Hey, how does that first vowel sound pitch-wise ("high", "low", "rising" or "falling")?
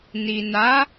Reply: low